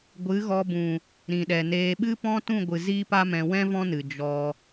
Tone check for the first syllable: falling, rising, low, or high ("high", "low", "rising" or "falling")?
rising